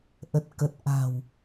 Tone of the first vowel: low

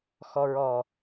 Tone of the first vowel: low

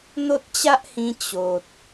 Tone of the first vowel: high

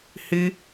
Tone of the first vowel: high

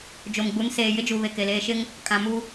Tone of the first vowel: low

